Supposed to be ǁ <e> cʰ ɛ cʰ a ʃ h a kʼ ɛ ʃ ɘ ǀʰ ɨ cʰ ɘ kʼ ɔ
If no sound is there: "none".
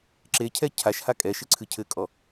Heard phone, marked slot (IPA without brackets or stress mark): e